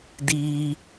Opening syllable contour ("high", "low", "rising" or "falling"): high